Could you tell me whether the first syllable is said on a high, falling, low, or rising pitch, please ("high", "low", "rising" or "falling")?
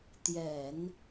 low